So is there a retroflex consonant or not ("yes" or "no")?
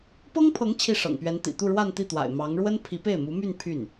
yes